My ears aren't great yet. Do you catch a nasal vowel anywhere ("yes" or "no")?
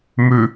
no